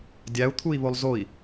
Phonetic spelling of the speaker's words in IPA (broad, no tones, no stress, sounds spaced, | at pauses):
dʲ æ u̯ t̪ʰ u i̯ β o lˠ z o i̯